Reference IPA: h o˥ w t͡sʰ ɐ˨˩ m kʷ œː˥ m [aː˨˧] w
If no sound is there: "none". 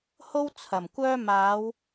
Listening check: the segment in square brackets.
aː˨˧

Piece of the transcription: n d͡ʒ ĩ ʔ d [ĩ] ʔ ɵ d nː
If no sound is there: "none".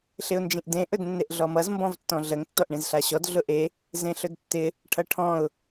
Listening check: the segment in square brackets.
ẽ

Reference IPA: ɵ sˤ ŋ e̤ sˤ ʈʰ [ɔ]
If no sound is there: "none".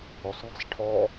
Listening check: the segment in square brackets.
ɔ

